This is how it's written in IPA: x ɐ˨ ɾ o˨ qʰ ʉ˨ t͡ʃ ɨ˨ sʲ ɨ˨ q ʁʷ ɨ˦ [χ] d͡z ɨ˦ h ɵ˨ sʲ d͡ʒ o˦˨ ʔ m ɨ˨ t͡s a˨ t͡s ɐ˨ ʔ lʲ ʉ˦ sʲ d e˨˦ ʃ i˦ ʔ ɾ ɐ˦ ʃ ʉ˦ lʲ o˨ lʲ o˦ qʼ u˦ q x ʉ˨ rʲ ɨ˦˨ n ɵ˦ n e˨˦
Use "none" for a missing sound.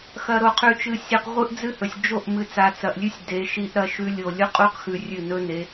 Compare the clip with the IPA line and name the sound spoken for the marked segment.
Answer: ʔ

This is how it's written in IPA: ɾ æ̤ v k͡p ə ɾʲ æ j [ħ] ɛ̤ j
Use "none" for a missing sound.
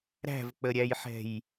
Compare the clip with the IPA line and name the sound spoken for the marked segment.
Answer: ħ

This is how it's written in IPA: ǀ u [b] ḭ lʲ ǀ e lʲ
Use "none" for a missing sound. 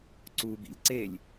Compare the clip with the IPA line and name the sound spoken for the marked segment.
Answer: b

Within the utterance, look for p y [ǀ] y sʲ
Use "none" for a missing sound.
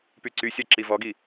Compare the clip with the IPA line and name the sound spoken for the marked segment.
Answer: ǀ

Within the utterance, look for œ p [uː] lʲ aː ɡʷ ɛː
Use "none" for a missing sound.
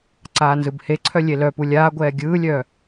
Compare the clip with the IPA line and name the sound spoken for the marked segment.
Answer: u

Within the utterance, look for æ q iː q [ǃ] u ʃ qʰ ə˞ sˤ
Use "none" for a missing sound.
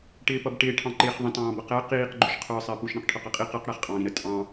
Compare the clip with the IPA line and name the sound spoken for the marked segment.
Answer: ɡ͡ǃ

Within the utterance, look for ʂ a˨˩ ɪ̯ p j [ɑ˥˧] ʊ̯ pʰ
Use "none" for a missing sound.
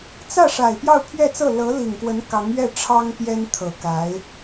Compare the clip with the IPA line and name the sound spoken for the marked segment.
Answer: ɑ˥˧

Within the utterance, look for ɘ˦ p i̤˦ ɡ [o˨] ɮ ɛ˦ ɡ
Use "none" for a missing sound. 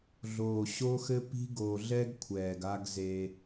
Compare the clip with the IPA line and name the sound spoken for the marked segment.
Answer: o˨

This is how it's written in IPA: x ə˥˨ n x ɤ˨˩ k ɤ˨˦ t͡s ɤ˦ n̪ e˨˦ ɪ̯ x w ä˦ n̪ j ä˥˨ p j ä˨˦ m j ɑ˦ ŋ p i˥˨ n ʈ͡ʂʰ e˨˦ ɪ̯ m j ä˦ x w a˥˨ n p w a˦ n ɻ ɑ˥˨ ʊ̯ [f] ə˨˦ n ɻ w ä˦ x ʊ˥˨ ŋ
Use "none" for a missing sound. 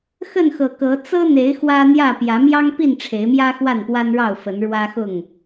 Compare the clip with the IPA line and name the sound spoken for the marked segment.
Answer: f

